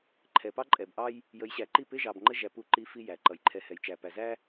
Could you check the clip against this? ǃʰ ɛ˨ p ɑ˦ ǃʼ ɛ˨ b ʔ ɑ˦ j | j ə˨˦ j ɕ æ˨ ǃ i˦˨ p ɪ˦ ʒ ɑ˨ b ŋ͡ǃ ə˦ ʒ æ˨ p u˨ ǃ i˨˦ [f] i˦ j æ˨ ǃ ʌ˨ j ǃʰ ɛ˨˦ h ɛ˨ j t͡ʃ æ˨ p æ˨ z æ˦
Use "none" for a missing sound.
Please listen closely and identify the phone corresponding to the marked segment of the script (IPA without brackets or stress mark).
f